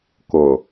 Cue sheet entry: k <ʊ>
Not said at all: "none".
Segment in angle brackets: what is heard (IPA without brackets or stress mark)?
ʊ